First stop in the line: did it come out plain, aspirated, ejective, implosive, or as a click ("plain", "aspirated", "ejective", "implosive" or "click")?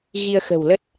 plain